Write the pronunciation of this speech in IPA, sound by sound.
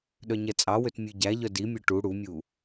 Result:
ɗ œ ɲ ɛ t͡sʼ ɑ w ø t mʲ ʉ ɟ æ ʎ œ d i mʲ ø ʈ u ɽ u mʲ u

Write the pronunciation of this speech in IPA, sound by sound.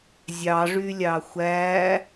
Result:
zʲ ɑ ʐ y lʲ ɑ xʷ æ

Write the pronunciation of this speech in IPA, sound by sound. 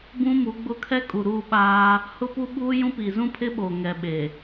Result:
b ũ˦ m u˨˦ ɡ͡b ʊ˦ kʰ ɛ˦ kʼ u˨ ɾ u˦˨ ɓ aː˦ | h ʊ˦ p u˦ ɓ uː˦ j ũ˦ p i˨ z ũ˦ pʰ ɪ˦ ɓ o˨ ŋ ɛ˨ ɓ e˨

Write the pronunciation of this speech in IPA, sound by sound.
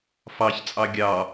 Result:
f ɑ ç t͡sʼ ɑ ɡʲ ɑ

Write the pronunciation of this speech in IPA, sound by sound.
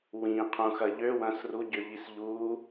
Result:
w ĩ qʰ ũ x ɐ ʎ ø w ɐ̃ s r u ɟ ʏ ʎ i s ʎ u

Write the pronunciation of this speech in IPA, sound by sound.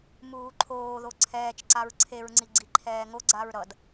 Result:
m uː ǃʰ oː ð o ǀʰ ɛː t͡ʃ ǀ a ɹ ǀʰ e ɹ ŋ͡ǀ i ɡ͡ǀ i ǃʰ ɛː ŋ o ɡ͡ǀ a ɹ ɾ ʌ d

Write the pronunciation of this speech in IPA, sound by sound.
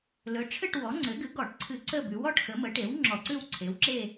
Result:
l ɵ˩˥ ʈ͡ʂʰ ɘ˥˨ ʈ w ɔ˩˥ ŋ͡ǀ ɘ˩˥ ɡ ɨ˩˥ ɡ ɔ˧˩˧ ʈ ǀʰ ɨ˧˩˧ ǀ ə˥˨ b ʉ˩˥ w ɔ˥˨ ʈ x ə˩˥ m ə˩˥ ʈ e˩˥ w ŋ͡ǁ ɔ˧˩˧ ǀ ʉ˥˨ w ǀʰ e˩˥ w ǁ e˥˨

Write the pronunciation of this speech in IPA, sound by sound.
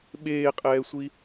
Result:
ɓ eː qʼ ɛː sʷ i

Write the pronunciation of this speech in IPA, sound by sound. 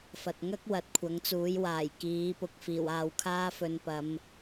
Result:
f ɐ˨ t̚ ŋ ɐ˥ k̚ w ɐ˧ t̚ kʷʰ ɐ˨˧ ŋ t͡s uː˨˥ j w aː˨˩ j k iː˨˥ p ʊ˨˥ k̚ f iː˨˩ w aː˧ w kʰ aː˥ f ɵ˧ n p ɐ˨˧ m

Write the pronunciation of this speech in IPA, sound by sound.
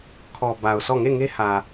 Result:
kʰ ɔ˨ b a˨ ʊ̯ s ɔ˦˨ ŋ e˦˨ ŋ e˦ h ä˨

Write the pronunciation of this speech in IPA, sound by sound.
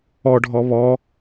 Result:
ɔ ɖʱ ɔ β ɔ

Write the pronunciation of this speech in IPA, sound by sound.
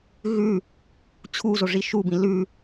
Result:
ɣ ʉ | t͡ɕʰ u z o ʐ i ʃ u b ĩ l ʉ

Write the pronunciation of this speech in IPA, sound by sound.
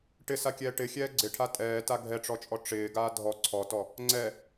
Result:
ʈ ɪ s a kʲ ɛː ʈ ɪ xʲ ɛː ɡ͡ǀ ɪ ʈʰ a tʼ ɛː t a ɡʱ ɛ ʈ͡ʂ ɔ t͡ʃʼ ɔ ʈ͡ʂ ɪː ɡ aː dʱ ɔ ǀʰ ɔ t ɔ | ŋ͡ǀ ɛ

